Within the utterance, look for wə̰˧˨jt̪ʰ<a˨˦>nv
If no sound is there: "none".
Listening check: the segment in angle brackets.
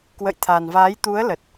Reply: a˨˩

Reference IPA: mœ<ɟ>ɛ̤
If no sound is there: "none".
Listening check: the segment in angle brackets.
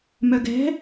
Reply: ɡ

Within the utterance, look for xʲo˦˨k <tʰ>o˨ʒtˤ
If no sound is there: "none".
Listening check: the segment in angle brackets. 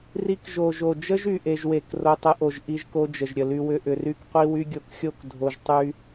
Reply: dʱ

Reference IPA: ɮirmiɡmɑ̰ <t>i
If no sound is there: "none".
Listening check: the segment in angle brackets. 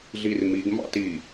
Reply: t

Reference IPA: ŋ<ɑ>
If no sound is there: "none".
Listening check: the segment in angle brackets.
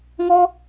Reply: ɔ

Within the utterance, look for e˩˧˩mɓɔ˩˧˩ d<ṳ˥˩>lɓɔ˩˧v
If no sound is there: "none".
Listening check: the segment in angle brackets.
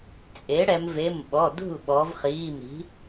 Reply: ṳ˥˩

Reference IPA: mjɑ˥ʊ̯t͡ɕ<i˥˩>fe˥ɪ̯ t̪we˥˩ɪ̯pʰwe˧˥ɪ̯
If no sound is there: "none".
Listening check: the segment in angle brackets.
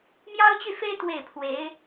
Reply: y˥˩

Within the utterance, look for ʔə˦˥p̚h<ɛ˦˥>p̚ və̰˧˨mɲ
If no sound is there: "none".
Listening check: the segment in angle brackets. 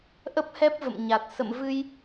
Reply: ɛ˦˥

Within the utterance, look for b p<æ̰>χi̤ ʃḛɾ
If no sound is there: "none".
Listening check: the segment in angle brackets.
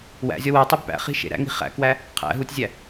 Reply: æ̰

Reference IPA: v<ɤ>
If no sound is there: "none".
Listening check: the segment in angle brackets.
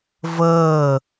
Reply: ɤː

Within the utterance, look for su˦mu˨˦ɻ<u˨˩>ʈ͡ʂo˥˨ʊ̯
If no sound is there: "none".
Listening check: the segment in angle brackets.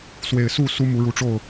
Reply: u˨˦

